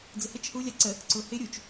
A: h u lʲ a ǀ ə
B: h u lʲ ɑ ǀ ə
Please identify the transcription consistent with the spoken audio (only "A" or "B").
A